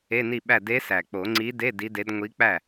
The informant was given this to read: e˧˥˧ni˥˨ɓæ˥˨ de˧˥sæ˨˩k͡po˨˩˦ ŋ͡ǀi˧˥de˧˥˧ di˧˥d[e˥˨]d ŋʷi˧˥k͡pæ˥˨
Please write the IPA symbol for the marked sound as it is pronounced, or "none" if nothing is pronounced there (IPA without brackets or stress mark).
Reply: e˧˥